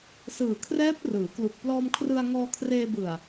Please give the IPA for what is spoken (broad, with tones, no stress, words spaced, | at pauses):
sɯː˨˩kʰrɛː˦˥p̚ rɯː˩˦klu˨˩k̚ plɔː˧mkʰrɯ˧a̯ ŋɔː˧kʰreː˧bɯ˨˩a̯